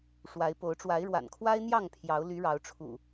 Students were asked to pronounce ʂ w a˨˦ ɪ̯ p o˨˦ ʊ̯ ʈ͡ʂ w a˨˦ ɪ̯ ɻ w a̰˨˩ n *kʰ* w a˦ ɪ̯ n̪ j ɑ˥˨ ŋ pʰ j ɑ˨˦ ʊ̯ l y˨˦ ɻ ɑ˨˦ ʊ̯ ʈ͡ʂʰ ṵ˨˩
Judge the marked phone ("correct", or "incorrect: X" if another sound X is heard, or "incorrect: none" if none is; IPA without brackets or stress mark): correct